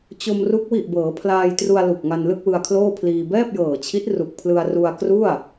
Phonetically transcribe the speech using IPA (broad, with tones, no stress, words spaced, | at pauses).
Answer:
t͡ɕo˧mru˦˥k̚ wi˨˩ʔ bɤː˩˦pʰlaː˧jtru˧a̯ lu˨˩k̚ŋa˧n lɯ˥˩k̚wɯ˧a̯kʰloː˥˩pʰliː˧ bɛː˥˩p̚jɤː˨˩t͡ɕʰi˦˥t̚ ru˨˩k̚ pʰlɯ˧a̯ ru˧a̯kru˥˩a̯